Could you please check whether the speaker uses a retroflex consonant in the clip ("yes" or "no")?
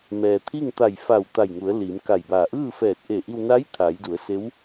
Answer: no